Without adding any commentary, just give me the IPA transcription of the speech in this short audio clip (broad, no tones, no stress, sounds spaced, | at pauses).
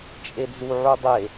t͡ʃʼ e d͡z u ʕ u dˤ e